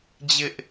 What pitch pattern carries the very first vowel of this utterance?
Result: high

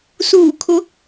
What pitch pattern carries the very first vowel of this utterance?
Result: low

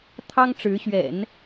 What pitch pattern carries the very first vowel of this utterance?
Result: high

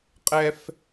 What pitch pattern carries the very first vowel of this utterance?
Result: high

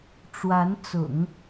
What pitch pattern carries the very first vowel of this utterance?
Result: rising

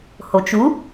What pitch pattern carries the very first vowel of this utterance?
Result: low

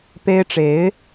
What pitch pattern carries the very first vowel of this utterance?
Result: high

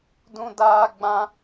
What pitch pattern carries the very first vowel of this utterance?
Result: high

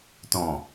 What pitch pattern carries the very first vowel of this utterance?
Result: low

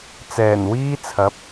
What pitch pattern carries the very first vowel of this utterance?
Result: low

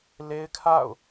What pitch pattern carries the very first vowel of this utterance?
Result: high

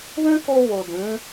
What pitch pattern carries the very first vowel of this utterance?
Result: high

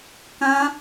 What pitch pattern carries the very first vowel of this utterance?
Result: high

